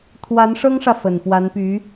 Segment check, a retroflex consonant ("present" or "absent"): present